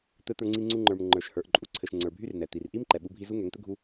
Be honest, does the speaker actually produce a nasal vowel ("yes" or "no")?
no